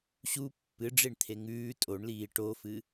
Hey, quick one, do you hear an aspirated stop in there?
yes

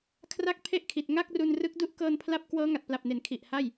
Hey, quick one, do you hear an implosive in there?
no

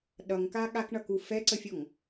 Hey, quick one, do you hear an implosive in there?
yes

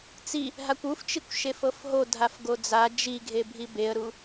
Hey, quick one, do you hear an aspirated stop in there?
no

